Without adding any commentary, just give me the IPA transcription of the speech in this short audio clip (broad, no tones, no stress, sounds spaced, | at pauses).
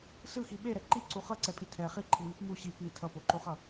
s ɯ x i ɓ e ɾ ɛ ǃ i ǀ u χ ʌ ǀ ɛ pʼ i tʰ ɛ χ i ǃʰ i ŋ i p m u ɕ i p i tʰ ʌ p o ǃ o χ ʌ